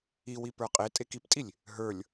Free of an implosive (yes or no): yes